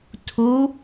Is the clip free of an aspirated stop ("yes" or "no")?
no